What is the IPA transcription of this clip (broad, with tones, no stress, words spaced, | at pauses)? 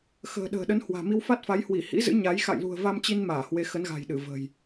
xə̤ː˨˩ɗə̤ː˨˩ɗə˨˦n hwa̤ː˨˩mi˧wfa˦˥t̚fa˨˦j hwi˧˩hḭ˧˥zɨ̰˧˥ ɲa˨˦j xa̰˧˨jlṳ˨˩ə̯ va˧mt͡ɕi˧n maː˧˩hwe˨˦ xə˨˦nɣa̤˨˩jɗɨ˧˩ və̤˨˩j